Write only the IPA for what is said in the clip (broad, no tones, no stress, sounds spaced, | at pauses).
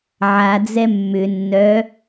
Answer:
ʕ a d͡z ɛ mː ʏ nː œ